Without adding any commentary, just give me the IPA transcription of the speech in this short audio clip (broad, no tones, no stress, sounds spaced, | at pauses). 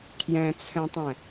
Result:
kʰ j ɛ̃ t͡sʰ ɛ̃ tˤ ɛ̃